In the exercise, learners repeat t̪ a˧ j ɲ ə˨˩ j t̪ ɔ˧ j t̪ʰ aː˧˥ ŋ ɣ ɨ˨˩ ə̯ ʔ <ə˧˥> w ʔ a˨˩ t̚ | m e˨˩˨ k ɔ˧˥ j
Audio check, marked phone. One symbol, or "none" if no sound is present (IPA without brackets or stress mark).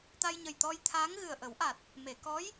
ə˨˩˦